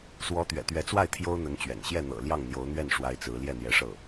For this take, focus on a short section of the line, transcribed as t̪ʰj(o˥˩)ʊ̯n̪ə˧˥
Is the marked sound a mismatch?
yes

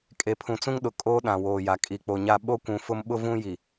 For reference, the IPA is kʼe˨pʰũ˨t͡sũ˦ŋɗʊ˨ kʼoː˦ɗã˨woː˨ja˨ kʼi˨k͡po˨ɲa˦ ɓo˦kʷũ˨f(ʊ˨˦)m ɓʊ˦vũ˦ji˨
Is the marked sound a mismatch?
yes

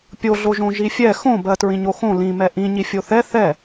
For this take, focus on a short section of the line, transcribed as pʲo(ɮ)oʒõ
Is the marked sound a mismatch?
no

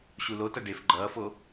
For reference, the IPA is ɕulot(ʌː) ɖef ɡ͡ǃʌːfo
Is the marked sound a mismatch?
yes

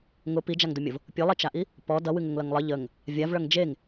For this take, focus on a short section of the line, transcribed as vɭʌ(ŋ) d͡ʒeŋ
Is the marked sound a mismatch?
no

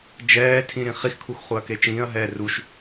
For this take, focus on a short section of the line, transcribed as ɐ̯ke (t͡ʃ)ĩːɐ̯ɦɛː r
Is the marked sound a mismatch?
no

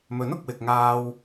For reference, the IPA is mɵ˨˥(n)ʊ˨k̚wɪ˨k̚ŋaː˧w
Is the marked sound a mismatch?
no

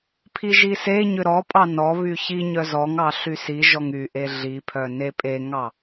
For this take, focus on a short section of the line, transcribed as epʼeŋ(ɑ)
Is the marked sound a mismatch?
no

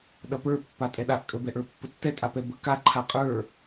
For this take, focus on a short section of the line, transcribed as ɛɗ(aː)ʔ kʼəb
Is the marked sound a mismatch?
yes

